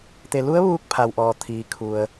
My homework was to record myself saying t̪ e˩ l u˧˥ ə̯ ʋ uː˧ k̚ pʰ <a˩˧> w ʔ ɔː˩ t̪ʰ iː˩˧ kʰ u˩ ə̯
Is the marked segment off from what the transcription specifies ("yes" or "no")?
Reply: yes